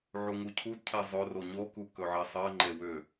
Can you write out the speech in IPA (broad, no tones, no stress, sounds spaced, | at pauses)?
ʕ u ŋ u cʰ u d cʰ ɛ zˤ ɵ r o ɲ o k u k ɵ ʕ ɛ sˤ ɜ ŋ͡ǃ e w ʏ